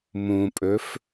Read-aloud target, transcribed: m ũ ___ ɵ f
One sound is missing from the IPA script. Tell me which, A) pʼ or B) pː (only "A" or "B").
A